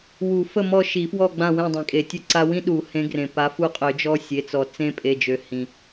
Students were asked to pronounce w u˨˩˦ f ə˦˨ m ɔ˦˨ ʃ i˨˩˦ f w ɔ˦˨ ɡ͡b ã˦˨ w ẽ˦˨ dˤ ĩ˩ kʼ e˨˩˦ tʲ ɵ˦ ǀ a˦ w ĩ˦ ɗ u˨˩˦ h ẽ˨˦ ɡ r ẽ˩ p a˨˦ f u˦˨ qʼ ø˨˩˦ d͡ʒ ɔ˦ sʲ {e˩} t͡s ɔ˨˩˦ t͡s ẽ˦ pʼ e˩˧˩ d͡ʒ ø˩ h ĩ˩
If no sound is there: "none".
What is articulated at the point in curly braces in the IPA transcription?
e˩˧˩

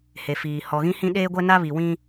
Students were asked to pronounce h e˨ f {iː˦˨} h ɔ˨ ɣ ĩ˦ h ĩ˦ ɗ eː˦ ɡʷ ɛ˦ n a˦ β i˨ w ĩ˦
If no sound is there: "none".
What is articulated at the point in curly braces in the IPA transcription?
iː˨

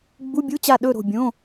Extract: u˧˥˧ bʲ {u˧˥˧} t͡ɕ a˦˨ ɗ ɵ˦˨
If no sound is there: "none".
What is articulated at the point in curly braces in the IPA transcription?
u˧˥˧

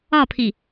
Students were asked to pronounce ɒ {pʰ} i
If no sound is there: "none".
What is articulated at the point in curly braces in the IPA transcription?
pʰ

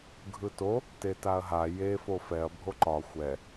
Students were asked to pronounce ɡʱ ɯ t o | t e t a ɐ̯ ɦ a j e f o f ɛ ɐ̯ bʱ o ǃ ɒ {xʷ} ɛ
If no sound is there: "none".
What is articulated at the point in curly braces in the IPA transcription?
xʷ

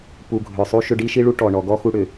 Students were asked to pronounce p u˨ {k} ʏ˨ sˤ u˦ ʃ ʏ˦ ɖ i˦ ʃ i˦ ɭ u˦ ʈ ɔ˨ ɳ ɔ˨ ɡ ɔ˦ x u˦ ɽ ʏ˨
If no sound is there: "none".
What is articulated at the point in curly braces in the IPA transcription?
ɡʱ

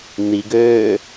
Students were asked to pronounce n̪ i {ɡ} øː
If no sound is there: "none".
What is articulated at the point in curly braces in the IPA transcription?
ɡ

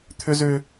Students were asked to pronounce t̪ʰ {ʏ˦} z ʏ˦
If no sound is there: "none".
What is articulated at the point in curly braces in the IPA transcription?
ʏ˦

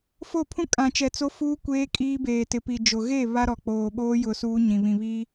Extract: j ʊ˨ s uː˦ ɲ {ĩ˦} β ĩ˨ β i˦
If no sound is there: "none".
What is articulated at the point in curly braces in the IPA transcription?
ĩ˨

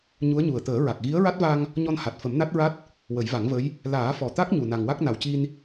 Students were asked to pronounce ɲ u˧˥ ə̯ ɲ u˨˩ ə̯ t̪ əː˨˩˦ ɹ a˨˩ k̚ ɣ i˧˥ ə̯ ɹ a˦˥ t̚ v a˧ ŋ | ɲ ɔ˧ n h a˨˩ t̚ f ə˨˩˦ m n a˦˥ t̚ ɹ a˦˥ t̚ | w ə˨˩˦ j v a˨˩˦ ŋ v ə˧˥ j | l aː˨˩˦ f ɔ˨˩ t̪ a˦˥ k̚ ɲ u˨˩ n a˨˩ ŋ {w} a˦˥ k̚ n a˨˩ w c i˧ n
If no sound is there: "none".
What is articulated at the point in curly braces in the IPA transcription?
w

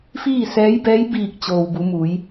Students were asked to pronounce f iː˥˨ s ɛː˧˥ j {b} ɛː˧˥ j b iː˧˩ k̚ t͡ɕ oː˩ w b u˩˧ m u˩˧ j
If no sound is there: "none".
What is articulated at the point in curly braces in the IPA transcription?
b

